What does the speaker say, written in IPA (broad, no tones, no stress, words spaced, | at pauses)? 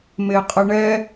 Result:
meqʼəɳɛ